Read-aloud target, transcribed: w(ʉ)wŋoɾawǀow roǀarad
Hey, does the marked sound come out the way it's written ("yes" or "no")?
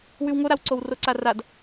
yes